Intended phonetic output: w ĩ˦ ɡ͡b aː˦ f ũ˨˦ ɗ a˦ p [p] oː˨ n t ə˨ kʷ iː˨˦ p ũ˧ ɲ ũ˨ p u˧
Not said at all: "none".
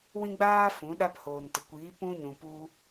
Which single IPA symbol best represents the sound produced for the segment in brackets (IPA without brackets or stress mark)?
h